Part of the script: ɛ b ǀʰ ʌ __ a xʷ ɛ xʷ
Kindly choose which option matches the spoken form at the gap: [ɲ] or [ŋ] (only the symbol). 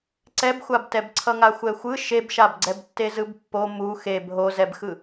ŋ